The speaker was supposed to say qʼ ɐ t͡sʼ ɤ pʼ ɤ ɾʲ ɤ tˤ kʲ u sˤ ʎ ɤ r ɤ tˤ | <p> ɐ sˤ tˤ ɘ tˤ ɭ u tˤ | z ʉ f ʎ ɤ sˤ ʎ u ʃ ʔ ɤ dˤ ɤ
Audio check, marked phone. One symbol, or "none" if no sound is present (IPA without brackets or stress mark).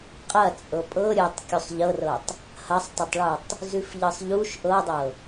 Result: h